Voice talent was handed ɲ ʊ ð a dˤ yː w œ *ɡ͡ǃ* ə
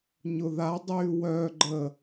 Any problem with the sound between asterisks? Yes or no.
no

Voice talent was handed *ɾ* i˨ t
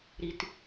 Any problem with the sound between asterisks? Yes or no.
no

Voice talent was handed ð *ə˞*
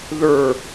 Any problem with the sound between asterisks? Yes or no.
no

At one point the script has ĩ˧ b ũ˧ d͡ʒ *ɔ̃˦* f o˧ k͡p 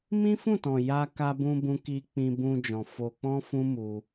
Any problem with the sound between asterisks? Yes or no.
yes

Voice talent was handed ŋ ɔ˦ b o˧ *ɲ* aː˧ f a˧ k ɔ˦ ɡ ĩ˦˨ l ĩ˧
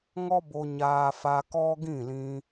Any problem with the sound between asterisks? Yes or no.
no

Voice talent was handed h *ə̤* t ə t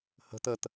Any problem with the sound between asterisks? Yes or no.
no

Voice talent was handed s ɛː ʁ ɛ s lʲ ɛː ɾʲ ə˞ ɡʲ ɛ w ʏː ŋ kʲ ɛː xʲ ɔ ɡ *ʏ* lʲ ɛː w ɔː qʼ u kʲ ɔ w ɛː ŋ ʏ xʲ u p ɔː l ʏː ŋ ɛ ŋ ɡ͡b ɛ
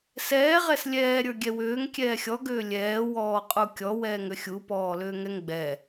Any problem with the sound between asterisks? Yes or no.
yes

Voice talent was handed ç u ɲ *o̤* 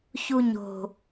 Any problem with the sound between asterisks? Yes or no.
no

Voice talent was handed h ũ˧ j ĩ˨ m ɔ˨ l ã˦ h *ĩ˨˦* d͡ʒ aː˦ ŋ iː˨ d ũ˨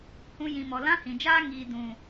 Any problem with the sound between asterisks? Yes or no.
yes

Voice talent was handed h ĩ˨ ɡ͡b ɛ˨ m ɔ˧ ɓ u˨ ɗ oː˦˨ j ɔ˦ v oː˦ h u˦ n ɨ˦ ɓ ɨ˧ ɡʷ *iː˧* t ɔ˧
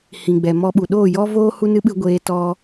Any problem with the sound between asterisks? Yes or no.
yes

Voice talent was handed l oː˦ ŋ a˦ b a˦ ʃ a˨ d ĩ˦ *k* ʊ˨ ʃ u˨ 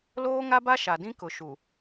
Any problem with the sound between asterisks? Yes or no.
no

